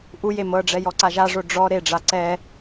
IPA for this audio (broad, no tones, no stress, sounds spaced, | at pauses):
ʔ u j e m ɤ ɖ͡ʐ ɛ j ɔ ǀ a ʒ a ʐ o ɖ͡ʐ ɔ ɾ e ɖ͡ʐ a ǀ ɛ